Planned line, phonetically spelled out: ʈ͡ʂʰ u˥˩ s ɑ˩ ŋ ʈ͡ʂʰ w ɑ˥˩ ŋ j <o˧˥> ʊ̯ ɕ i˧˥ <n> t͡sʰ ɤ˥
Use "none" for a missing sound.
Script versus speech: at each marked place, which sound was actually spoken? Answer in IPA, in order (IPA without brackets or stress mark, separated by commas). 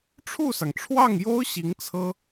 o˥, ŋ